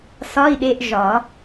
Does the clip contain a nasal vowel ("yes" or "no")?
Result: no